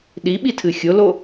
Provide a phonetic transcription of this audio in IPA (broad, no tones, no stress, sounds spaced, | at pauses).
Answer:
ɗ i ɓ i tʰ ɨ xʲ ʊ l o